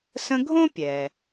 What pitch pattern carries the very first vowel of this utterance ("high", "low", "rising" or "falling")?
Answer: high